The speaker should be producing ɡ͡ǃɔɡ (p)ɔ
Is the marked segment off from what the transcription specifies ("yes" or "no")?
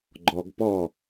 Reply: no